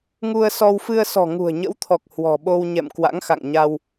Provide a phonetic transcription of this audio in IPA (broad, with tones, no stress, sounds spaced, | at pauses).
ŋ u˧ ə̯ s ɔ˧ w f ɨ˧ ə̯ s ɔ̤˨˩ ŋ ṳ˨˩ ə̯ ɲ ə̰˧˥ w t̪ʰ ɔ˨˩ k̚ h w ɔ̤˨˩ ɓ o˧ w ɲ ɛ̰˧˨ m k w a̰˧˥ ŋ x a̰˧˨ ŋ ɲ a˧ w